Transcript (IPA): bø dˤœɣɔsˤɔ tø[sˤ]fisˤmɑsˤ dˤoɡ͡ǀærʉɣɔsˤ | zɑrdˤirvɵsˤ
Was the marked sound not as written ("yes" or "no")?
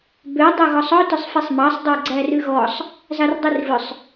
no